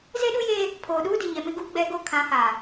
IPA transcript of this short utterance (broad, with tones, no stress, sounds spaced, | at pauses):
z e˦ ɗ u˦ j eː˦ | pʰ oː˨ ɗ uː˦ d i˨ ɲ ɛ˨ m ɪ˦ ɡ uː˦ ɡ͡b ɛ˦ ɡ o˦ kʰ ã˨˦ h aː˨